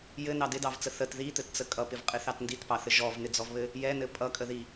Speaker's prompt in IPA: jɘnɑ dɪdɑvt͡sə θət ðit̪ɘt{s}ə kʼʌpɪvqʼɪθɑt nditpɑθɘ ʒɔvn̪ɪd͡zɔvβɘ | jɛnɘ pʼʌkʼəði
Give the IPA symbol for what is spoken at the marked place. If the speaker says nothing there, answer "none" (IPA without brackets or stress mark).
t͡s